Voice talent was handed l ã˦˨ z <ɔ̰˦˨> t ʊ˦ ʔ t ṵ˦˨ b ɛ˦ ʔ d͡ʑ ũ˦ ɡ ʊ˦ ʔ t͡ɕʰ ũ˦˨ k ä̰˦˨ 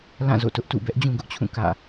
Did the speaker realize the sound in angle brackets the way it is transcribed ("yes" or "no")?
no